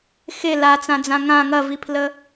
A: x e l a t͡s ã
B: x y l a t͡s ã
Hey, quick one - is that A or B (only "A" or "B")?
A